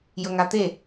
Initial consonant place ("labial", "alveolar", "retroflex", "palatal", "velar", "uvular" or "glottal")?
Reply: palatal